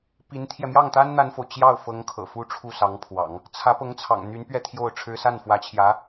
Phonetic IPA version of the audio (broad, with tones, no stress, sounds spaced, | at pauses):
p i˧˥ n t̪ʰ j ɛ˧ m j ɑ˥˩ ŋ t̪ a˥ n n̪ a˥ n f o˨ ʊ̯ t͡ɕ j ɑ˥˩ ʊ̯ f ɤ˧˥ ŋ kʰ ɤ̰˨˩ f u˥ ʈ͡ʂʰ u˥˩ s ɑ˧˥ ŋ pʰ w ɑ̰˨˩˦ ŋ | t͡sʰ ä˧˥ p ɤ˧˥ ŋ t͡sʰ ɑ̰˨˩ ŋ n̪ y˧˥ n p ɥ ɛ˥˧ t̪ʰ j o˥˩ ʊ̯ ʈ͡ʂʰ ɻ̩˥ s a˥˩ n f w ä˧˥ t͡ɕʰ j ä˧˥